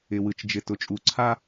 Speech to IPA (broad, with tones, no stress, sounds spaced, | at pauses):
ɪ˨ w ɯ˨ t͡ʃ d͡ʒ ɪ˨ t ʊ˨ t͡ʃʼ u˨ ǀʰ a˦